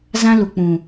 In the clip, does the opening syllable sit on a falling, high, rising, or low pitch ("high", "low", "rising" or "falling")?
high